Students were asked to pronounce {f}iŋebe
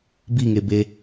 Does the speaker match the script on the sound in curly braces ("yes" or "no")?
no